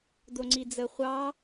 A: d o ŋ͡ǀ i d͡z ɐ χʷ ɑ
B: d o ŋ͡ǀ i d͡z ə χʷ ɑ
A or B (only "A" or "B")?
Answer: B